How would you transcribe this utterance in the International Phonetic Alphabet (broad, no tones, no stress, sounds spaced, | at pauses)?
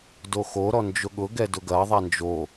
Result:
d o x o ɾ ɔ n d͡ʒ ʊ ɠ ʊ ɡ ɛ d ʊ ɡ ɐ ðˤ a n d͡ʒ o